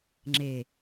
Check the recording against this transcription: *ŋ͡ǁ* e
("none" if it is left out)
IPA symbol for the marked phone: ŋ͡ǁ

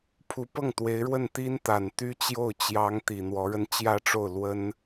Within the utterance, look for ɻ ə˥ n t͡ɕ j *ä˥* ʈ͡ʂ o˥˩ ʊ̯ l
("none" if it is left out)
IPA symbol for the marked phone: ä˥˧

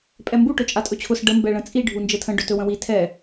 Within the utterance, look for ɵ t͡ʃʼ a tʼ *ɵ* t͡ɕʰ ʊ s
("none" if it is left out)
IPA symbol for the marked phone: ɵ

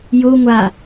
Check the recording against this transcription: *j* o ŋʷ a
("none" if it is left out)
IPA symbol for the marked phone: j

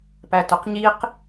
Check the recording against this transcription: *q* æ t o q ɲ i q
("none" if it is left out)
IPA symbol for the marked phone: p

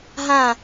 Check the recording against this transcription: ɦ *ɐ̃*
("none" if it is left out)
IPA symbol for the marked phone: ã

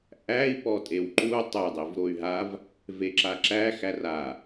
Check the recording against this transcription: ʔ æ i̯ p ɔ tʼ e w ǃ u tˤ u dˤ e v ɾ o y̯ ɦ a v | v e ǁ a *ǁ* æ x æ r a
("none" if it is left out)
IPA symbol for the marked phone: ǁ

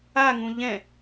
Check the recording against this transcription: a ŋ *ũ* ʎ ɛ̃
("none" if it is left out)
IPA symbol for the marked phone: ũ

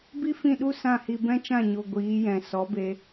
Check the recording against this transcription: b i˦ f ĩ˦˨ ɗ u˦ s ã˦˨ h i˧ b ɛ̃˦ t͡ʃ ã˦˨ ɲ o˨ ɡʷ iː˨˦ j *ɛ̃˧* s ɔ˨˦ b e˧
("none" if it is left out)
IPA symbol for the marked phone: ɛ̃˨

